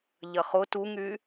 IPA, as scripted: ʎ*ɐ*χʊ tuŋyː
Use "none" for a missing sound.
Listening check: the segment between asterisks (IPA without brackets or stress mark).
ɐ